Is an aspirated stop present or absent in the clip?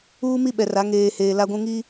absent